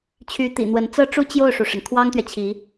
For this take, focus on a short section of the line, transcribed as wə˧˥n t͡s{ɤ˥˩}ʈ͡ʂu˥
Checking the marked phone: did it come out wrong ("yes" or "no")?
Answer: yes